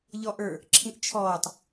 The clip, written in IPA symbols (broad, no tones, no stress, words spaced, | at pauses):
ʎɔʔə˞ | ǁʰĩʔt͡ʃʰɔːtˤ